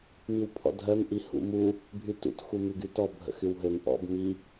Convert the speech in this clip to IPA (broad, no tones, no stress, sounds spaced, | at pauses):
m i w pʰ ɔ̰ dʱ œ m ʔ i h ṵ m u | bʱ y t ṵ t x u m y ɡ y t ɔ bʱ ə̰ x y w ɦ ø m ʔ ɔ̰ b m i